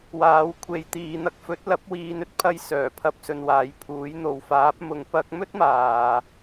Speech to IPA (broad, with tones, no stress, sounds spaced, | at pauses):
w aː˨˥ w kʷʰ e˨˧ j t̪ iː˨˧ n̪ ɐ˧ k̚ f ɵ˨˥ t̚ l ɐ˨˥ p̚ w iː˨˧ n ɵ˧ t̚ pʰ ɐ˧ j s œː˨˩ pʰ ɐ˧ p̚ s ɵ˨ n w aː˨˥ j pʰ uː˨˥ j n̪ o˨ w f aː˨˥ p̚ m ʊ˧ ŋ p ɐ˥ k̚ m ɵ˥ t̚ m aː˨